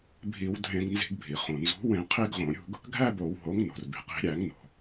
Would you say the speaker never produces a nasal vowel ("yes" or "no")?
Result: no